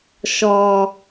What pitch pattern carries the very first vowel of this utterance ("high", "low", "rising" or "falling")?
low